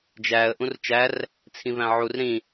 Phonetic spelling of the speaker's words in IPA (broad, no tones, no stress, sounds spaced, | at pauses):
d͡ʒ æ ə̯ ʔ ũ r t͡ʃ æ r | t͡sʰ ĩ v æ̃ ʕ u r ɾ ĩ